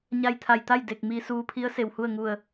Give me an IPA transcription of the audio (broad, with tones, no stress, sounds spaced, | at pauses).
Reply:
ɲ a˧ j t̪ʰ a˧˩ j t̪ a˥˨ j d e˧˩ k̚ m i˧ s uː˧ pʰ i˧˥ ə̯ s e˧˩ w h u˥˨ ə̯ ŋ u˧˩ ə̯